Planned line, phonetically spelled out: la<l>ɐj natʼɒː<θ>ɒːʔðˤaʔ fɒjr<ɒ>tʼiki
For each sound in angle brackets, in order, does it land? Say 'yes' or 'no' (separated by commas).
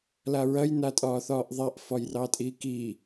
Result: no, yes, no